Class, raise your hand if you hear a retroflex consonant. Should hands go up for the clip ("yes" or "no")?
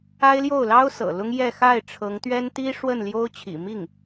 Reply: yes